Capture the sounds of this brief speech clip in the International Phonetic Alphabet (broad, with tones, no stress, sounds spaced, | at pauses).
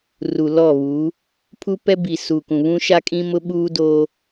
r u˨ l ɔ˦˨ β uː˨˦ | pʰ u˦ p ɛ˦ b i˨ s u˨ k ũ˨ β ũ˦ ʃ a˦ kʼ ĩ˦ m ʊ˦ ɓ uː˦ d oː˦